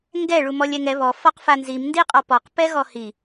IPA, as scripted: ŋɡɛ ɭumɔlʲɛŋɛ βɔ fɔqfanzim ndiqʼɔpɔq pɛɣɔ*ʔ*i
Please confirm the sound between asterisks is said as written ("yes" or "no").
no